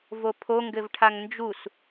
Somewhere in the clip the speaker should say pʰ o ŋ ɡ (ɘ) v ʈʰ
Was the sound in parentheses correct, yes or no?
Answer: yes